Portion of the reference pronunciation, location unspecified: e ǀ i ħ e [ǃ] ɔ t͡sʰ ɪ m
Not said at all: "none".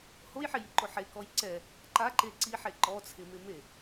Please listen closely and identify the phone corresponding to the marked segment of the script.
ǃ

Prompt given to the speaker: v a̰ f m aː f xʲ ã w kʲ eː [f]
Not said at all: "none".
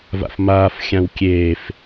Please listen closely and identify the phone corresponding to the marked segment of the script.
f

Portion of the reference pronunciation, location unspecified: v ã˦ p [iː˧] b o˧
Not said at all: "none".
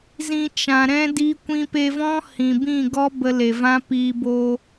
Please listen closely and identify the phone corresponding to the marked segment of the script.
iː˧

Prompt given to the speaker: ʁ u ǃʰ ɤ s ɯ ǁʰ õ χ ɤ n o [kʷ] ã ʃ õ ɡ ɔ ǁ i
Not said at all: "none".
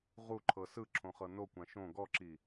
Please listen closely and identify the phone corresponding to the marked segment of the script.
kʷ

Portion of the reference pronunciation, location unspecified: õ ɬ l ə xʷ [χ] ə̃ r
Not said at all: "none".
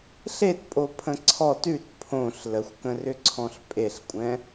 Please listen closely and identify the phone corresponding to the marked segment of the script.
k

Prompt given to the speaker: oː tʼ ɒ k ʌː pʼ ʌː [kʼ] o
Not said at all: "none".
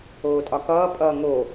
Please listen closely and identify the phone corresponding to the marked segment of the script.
ŋ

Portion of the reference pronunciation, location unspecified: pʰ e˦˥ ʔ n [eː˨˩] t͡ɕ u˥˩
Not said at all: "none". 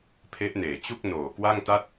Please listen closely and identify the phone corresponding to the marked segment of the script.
eː˨˩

